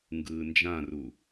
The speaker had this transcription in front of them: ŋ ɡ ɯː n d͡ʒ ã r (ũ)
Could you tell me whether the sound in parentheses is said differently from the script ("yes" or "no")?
yes